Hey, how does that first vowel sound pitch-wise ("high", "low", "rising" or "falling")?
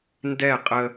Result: falling